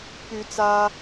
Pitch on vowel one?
rising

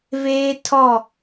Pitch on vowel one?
high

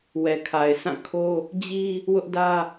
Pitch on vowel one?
low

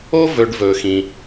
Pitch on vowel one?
high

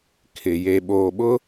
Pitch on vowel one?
low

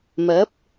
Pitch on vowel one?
rising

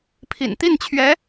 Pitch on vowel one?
low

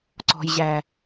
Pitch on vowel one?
low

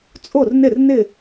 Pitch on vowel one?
falling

